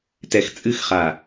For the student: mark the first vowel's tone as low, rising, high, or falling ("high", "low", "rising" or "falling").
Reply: low